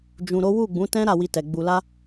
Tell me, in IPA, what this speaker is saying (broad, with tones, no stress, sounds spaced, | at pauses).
d͡ʒ ũ˨ ɾ o˨˦ w u˦˨ ɡ͡b ũ˨˦ t ɛ̃˦ ɾ a˦˨ w i˧ t ɛ˨ ɡ͡b u˨ l a˧